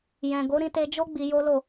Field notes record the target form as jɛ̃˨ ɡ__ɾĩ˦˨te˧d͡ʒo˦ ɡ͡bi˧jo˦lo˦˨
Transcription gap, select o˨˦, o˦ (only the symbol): o˨˦